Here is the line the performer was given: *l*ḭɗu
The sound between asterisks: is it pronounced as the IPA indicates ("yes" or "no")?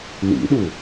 yes